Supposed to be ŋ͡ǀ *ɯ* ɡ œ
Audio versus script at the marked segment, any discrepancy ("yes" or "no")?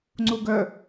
yes